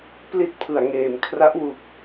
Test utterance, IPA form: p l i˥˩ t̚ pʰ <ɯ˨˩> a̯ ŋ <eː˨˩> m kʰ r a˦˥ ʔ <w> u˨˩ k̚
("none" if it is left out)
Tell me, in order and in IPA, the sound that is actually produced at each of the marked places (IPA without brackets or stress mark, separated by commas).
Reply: ɯ˨˩, eː˨˩, w